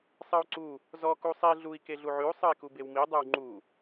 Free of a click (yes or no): no